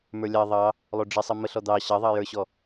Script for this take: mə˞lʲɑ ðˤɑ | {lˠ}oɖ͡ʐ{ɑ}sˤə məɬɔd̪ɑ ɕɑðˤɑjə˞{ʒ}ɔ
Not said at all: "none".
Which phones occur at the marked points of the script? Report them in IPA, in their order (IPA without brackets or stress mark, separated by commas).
lˠ, ə, ɕ